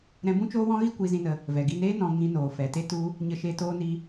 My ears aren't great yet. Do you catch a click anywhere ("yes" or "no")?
no